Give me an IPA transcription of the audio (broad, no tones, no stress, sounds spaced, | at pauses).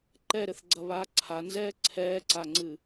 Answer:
ǃ ɛ ɾ ɘ θ ɡ͡ǀ ɐ β aː ǀʰ a n z ɛː ǀʰ ɛː ǀ a ŋ͡ǀ ɨ